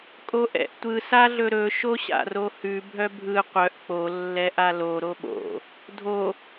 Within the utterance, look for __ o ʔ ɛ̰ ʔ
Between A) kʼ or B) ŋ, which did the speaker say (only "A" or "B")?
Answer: A